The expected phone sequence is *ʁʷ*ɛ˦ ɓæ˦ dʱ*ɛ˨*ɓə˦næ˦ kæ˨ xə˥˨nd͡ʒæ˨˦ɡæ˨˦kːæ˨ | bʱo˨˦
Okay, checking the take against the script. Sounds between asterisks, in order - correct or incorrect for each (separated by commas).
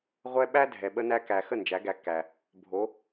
correct, correct